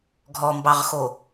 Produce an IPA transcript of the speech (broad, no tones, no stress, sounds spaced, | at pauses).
ɡʱ ɔ m b ɑ ʁ x o